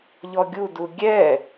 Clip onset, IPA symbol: ʎ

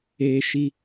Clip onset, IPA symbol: eː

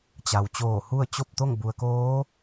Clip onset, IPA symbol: t͡ɕ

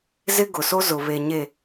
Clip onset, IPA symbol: z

